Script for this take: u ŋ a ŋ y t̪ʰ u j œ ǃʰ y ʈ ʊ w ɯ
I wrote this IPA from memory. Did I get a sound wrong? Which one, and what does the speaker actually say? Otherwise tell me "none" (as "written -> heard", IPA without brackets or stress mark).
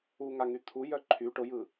w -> j